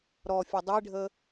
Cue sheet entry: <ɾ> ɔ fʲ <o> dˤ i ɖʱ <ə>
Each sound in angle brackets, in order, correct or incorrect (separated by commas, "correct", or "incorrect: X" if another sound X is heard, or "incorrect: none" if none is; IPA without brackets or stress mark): correct, incorrect: ɤ, correct